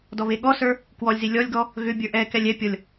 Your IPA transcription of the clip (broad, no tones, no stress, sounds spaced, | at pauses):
d ɔ β e ɠ ɔ s ə˞ | k w ɔ lʲ z i lʲ ɔ lʲ ɡ ɔ | ɣ ʏ bʲ ə˞ ʔ ɛ k ɛ lʲ ɛ pʲ ɔ lʲ